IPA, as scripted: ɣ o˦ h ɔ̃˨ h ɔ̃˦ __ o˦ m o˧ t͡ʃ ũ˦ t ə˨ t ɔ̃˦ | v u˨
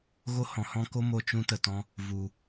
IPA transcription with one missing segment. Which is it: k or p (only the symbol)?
k